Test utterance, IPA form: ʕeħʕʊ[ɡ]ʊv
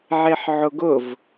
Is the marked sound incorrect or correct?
correct